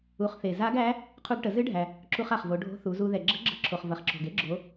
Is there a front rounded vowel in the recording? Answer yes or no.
no